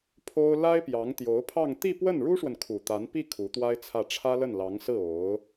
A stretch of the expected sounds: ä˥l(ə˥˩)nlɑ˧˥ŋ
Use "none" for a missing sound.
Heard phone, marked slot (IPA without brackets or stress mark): ə˥˩